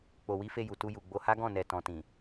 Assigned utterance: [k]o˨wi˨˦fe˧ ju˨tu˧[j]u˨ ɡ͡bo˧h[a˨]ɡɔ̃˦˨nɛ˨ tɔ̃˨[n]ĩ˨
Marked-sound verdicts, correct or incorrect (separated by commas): incorrect, correct, incorrect, incorrect